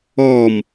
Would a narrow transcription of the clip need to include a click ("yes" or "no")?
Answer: no